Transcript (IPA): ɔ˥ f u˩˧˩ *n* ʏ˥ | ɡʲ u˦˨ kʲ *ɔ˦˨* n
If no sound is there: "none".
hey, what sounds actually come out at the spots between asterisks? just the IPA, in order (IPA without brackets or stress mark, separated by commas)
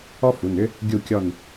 n, ɔ˦˨